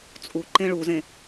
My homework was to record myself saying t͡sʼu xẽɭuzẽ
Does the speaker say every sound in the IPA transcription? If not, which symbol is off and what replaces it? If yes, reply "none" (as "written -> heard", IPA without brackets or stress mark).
x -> ǃ